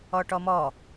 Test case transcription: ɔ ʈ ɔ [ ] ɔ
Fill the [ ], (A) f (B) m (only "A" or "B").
B